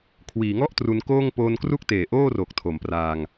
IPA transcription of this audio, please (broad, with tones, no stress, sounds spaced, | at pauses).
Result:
kʰ w iː˩˦ ŋ ɔ˥˩ ʔ t r u˧ n k oː˥˩ ŋ p oː˧ n k r u˥˩ k̚ t eː˨˩ ʔ oː˥˩ r o˨˩ k̚ tʰ o˩˦ m p r aː˧ ŋ